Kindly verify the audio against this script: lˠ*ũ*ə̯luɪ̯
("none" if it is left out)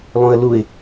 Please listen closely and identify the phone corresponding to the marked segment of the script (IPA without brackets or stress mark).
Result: ũ